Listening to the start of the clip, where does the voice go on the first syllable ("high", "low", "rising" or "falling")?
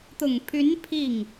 low